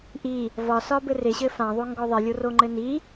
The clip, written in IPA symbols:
ʔi | vɒ sɒbɘre ɕɘfãðˤo ŋɡɔðˤɪlʲo roŋ͡ǃɘni

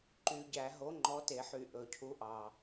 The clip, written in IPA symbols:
ǃy˧˩˧ɟæ˧˩˧ ɦo˨˥ŋ͡ǃɔ˨˥te˧˩˧ħy˧˩˧ ʔɵ˨˩cʰu˨˥ʔɑ˨˩

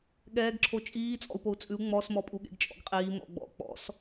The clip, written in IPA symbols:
ɠɛːɡǁʰo t͡ʃʼiː t͡sʼɔ̰u̯pou̯t͡sʼʉu̯ ŋ͡mɔsmɔpʼuɠḛɡ t͡ʃʼɔ̰ɡqʼiː mɔ̰ɡ͡bɔ̰ k͡pɔ̰s

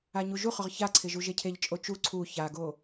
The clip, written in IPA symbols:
aɲuʒuχʊʁ çaǀʰɪ ʒuʒecʰeʎt͡ʃʼo t͡ʃu ǀʰu çaɡo

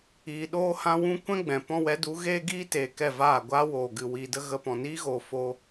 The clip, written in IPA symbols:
iː˧ ɗoː˦hã˦wũ˦ kʷɛ̃˦ɡ͡bɛ̃˨ pɔ̃˦ wɛ˨˦du˨˦ ɣeː˦ɡiː˦teː˨ kɛ˦˨vaː˦˨ ɡʷaː˦woː˨ɡɨ˨ wiː˨ də˦ɣə˧pɔ̃˨ niː˦ɣoː˨ foː˦

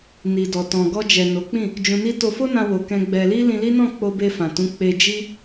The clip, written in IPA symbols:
ni˨dɔ˨tɔ̃˨ ɡɔ˧d͡ʒɛ˨ no˨˦k͡pĩ˦˨ | d͡ʒũ˧ni˦ to˧fo˦nã˧wo˨ kɛ̃˧ ɡ͡bɛ˧ li˦lĩ˧li˦nɔ̃˦˨ k͡po˧be˧fã˨ tũ˨˦k͡pe˧ d͡ʒi˦

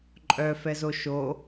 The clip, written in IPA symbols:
ǃʼœfɛzo ʃo

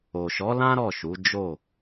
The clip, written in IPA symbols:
o˨ʃɔ˨˦lã˦ ɾɔ˦˨ʃu˨˦ d͡ʒo˦˨

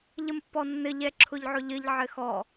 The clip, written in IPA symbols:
ʎəmpːɔnːɘ ʎɛǁʰʊʎʕʊʎɘʎ ʕɘxɔ

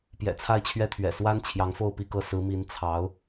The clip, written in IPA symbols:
pjɛ̰˨˩t͡sʰa˥˧ɪ̯t͡ɕʰɥɛ˥˩t̪ʰɥɛ̰˨˩ swa˥n t͡ɕʰjɑ˧˥ŋfo˥˧ʊ̯pi˥˧kɤ˥˩ sɹ̩˧˥mi˧˥n t͡sʰɑ˧˥ʊ̯

